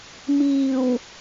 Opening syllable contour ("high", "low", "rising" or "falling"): low